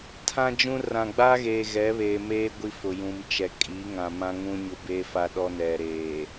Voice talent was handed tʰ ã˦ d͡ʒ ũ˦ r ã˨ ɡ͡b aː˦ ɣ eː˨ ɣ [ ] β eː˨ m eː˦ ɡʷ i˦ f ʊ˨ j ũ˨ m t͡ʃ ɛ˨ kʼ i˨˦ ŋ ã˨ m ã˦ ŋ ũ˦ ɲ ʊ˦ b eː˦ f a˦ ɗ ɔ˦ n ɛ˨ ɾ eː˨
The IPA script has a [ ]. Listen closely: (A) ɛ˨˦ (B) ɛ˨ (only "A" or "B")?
A